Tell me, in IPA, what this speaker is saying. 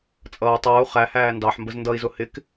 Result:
t͡sʼʌː tˤʌːu̯ χæhæː ndɑħmbəz ndʌi̯zʊ hɪk

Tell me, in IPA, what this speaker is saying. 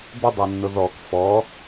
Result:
bʊ dˤanːʊðɔk fɔ

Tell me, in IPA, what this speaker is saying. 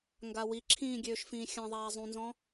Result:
ŋɡawiǁʰĩː ɡʲøːʃfĩːxʲãðˤaː zˤũnzɔ̃

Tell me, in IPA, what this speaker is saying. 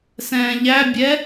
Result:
sɛ̃ːʎæ bʲɛ

